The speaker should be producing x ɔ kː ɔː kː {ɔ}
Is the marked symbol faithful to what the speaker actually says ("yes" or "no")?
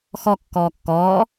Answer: no